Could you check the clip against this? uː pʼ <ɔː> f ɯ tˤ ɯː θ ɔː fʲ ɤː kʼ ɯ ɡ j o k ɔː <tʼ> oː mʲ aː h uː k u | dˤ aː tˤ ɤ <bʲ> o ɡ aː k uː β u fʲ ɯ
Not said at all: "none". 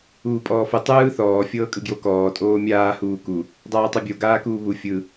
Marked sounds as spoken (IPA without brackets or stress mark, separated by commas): ɔː, tʼ, bʲ